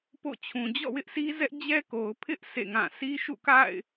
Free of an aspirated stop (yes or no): no